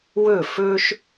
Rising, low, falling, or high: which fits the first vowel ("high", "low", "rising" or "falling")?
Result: falling